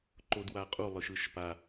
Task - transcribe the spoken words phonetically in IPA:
ǃ o d w a qʼ u lˠ ɯ ʃ ɯ ʃ p a

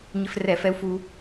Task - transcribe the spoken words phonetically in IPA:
ɲ ɪ˧ f r ɛ˧˩˧ f ɛ˧ u̯ f u˧

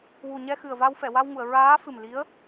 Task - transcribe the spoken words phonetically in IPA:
w u˨˩ ɲ ɛ˧ x ɨ˨˩ ə̯ v a˧ w f ɛ˨˩˨ w a˧ w ŋ u˨˩˨ ə̯ ɹ aː˧˥ f ɨ˨˩ m l i˧˥ ə̯

